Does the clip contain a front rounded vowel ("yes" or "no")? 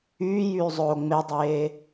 yes